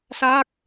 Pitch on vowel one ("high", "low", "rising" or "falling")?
falling